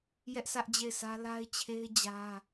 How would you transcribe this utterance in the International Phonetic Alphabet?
jɛ˦ʔsʰä˦ʔd͡ʑe˦˨ɪ̯sʰä˦ la˦ɪ̯t͡ɕʰe˦ɪ̯ d͡ʑä˦

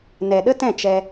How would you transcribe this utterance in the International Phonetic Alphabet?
nɛ˨ɗə˦tɛ̃˦˨ t͡ʃɛ˧

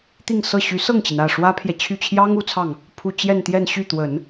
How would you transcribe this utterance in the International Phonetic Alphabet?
t̪i˥˧ŋsɤ˥˩ ɕy˧˥sɤ˥˩ŋt͡ɕi˩n ä˥˩ʂwä˥pʰjɛ˨ t͡ɕʰy˥˩ t͡ɕʰjɑ˥ŋ u˧˥t͡sʰɑ˥˩ŋ | pʰu˥˧ t͡ɕjɛ˥˧nt̪jɛ˥˧nɕy˥˩t̪wə˨˩˦n

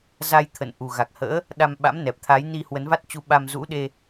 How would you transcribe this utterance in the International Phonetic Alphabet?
za˧jt̪ʰə̰˧˨n ʔu˨˩ ɣa˨˩k̚hə̰ː˧˥ | ɗa˧mɓa̰˧˥mnɛ˨˩p̚t̪ʰa˨˦j ni˧hwə˨˦nva˦˥t̚t͡ɕu˧ ɓa˧mzṵ˧˥ɗe˧

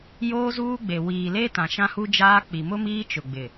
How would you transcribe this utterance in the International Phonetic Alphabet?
joː˦zuː˦ɡ͡be˨ wiː˨le˦ tã˨ʃã˦hu˦d͡ʒaː˦ k͡pi˨mʊ˦miː˦ t͡ʃʊ˨ɡ͡bɪ˨

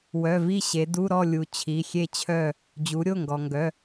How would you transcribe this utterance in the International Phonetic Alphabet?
wœ˩˧˩vi˥˨ɕe˩˧du˧˥˧ ɾɔ˥˨ lʲu˩ t͡ɕʰi˩˧˩xʲe˥˨t͡ɕʰœ˥˨ | d͡ʑu˩˧ɾʲo˩˧˩ŋɡɔ˩ŋɡœ˩˧˩

